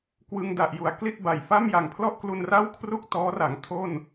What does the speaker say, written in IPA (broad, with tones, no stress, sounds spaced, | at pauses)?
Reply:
k w ɯ˧ ŋ d a˨˩ ʔ j u˩˦ a̯ k l i˥˩ t̚ b a˨˩ j f a˥˩ m j a˨˩ ŋ pʰ l ɔ˥˩ ʔ k l u˧ n r a˥˩ w kʰ r u˥˩ k̚ t ɔː˦˥ r a˩˦ ŋ tʰ o˥˩ n